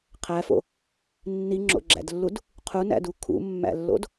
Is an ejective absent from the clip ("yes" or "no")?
yes